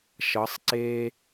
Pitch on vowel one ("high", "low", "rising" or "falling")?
rising